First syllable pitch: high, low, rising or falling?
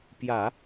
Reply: low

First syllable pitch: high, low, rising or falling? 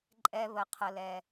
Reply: low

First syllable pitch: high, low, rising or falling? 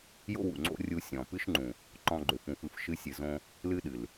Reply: high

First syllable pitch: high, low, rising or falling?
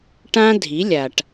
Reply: high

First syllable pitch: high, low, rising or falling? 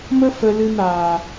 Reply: high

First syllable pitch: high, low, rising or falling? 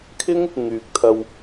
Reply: high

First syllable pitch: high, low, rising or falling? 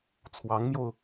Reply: rising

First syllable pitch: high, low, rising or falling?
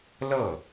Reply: falling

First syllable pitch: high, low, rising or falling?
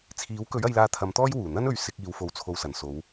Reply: rising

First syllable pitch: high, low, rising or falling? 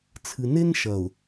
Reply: low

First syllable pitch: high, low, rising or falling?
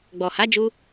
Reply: low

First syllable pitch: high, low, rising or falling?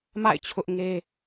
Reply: falling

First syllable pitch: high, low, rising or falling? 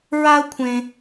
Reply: high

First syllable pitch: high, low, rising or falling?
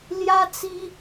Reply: high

